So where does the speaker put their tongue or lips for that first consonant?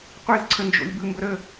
uvula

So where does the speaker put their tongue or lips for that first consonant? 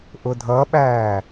throat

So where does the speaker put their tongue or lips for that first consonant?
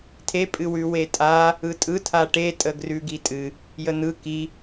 tongue tip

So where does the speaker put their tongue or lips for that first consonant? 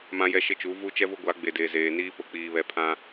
lips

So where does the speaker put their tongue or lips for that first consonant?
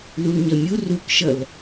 tongue tip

